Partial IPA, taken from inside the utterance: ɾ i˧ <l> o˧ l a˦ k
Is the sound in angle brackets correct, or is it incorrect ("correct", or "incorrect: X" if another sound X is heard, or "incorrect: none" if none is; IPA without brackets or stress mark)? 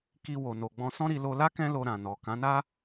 correct